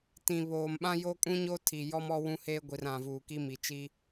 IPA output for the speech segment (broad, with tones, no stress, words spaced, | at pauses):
tĩ˨ βoː˨mɓã˦ joː˦kʼũ˦ɲoː˦ tʰi˨jɔ˦m ɔ˦wũ˦heː˦ɡʷi˨r ã˨vuː˨ ki˦mi˨t͡ʃi˦